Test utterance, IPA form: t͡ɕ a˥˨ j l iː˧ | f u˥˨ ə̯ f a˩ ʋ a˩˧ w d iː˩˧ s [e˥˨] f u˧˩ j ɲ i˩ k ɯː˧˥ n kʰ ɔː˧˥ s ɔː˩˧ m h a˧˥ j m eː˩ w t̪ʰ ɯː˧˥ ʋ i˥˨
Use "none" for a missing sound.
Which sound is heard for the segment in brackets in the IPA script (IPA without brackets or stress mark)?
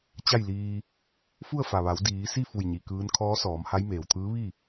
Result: i˥˨